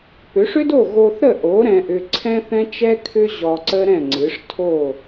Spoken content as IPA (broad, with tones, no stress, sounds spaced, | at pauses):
p ʏ˩˥ ʂ ʏ˥ d o˥˩ ɣ o˧ θ ɾ ə˥˩ ʔ o˩˥ ɾ ɛ̃˧ ʔ ʏ˧ ǀʰ ɛ̃˥ θ ɛ̃˥ t͡ʃ ɛ˥ kʰ ʏ˥ ʑ ɔ˧ ǀ ə˥ ɾ ɛ̃˥˩ ŋ͡ǀ ɨ˩˥ ʂ tʰ o˥˩